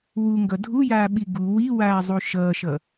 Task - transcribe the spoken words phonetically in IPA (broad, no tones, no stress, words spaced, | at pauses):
wuŋɡʌ dʱujaːɓi ɡu wiwaːzˤu ʃʌːʃʌ